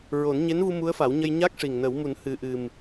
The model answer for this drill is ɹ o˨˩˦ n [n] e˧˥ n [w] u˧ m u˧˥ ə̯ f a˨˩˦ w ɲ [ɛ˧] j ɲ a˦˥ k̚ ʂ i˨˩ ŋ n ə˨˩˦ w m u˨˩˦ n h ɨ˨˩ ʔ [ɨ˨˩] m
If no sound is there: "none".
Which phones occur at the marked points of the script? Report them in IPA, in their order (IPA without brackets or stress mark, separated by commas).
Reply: ɲ, v, ə˧, ɨ˨˩